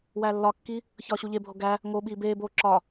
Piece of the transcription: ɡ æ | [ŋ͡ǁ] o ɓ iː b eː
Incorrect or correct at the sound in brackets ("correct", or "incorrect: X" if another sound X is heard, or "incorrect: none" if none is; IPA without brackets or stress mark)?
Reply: incorrect: ŋ